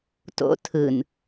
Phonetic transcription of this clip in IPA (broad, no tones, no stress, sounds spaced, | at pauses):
t o̰ tʰ ɯ n